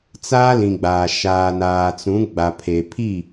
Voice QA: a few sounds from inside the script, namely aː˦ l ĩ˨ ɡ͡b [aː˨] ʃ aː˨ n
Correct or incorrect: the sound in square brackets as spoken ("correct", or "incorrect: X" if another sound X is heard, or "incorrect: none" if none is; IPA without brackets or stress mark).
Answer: correct